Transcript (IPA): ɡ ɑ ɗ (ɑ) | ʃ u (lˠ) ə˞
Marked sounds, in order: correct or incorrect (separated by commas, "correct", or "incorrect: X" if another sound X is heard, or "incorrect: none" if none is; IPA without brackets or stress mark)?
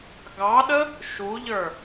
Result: incorrect: ə, incorrect: ʎ